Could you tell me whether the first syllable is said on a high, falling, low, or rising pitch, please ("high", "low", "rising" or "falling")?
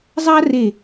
high